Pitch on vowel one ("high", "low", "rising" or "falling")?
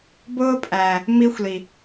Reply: high